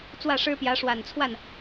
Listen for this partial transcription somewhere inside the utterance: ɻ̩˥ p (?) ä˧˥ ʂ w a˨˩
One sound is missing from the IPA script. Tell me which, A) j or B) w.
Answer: A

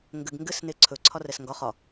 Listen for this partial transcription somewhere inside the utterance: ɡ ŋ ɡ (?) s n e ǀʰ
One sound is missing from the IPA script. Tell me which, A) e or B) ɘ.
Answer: B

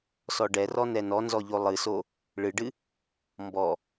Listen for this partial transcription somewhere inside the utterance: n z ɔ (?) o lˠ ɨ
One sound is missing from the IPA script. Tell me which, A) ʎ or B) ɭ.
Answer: A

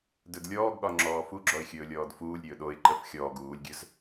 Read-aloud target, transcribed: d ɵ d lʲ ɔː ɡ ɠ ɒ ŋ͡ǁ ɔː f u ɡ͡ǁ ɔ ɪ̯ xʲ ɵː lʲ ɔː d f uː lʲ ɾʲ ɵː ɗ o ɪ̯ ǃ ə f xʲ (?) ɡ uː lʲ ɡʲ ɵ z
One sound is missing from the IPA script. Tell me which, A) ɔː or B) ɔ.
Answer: A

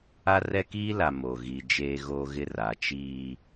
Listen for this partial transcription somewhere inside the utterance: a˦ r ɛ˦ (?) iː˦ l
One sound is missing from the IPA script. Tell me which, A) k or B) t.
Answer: A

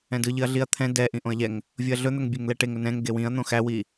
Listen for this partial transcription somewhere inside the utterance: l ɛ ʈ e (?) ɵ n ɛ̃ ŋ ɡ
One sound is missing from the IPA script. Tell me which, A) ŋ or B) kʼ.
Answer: A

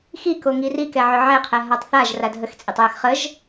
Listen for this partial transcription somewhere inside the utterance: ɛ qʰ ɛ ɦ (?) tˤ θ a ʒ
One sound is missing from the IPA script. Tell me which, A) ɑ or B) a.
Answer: B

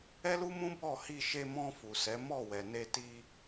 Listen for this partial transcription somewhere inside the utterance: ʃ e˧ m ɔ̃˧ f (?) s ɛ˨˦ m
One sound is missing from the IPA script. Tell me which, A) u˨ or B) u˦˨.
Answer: A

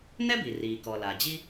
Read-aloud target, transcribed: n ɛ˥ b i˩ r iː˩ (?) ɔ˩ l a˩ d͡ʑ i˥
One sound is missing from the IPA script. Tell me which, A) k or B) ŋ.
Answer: A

